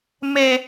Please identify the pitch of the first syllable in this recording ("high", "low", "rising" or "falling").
high